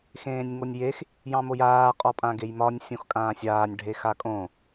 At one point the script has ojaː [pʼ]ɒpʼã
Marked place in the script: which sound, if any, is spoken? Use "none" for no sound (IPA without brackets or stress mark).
qʼ